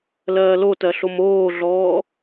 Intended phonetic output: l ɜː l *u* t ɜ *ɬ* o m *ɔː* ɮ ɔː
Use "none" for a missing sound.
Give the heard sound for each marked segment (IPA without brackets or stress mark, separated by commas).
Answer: o, ɬ, oː